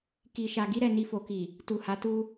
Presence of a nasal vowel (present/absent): absent